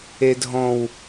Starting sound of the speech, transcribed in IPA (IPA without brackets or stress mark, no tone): e